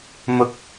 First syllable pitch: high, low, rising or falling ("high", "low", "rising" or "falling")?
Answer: rising